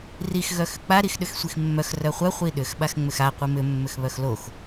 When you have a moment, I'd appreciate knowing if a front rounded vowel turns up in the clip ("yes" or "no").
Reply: yes